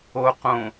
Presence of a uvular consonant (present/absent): present